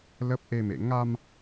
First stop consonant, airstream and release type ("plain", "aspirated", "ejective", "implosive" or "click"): plain